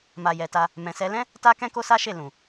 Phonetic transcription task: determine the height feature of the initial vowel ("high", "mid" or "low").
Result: low